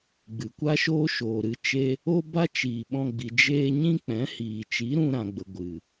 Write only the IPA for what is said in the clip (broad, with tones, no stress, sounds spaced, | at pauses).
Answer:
ɡ͡b ɨ˨ kʷ a˦ ʃ oː˦ ʃ oː˨ ɾ ɨ˧ t͡ʃ e˦ | o˦ b a˦ t͡ʃ iː˨ ɓ ɔ̃˧ ɡ͡b i˨ d͡ʒ eː˧ ɲ ĩ˦ k͡p ɛ̃˨˦ h iː˨ t͡ʃ i˨˦ ɾ ũ˧ ɾ ã˨ ɡ͡b ə˨ ɡʷ ɨ˨